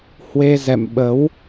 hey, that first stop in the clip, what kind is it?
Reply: implosive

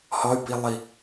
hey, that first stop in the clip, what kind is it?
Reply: plain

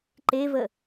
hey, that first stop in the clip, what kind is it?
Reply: click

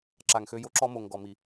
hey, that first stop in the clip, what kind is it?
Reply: click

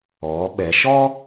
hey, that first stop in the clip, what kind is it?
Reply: implosive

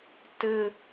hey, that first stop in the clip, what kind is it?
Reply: plain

